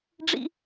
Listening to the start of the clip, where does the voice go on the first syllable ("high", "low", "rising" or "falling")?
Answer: high